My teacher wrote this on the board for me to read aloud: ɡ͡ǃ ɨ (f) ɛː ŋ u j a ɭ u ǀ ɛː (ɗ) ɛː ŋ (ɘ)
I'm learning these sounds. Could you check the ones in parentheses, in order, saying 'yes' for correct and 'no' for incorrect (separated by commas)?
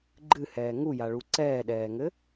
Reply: no, yes, yes